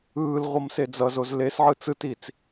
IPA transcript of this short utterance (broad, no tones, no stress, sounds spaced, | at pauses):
ɯː l ʁʷ ʌ m s e d͡z ʌ z o z l e s ʕ ɯ t͡s ɯ t i t͡s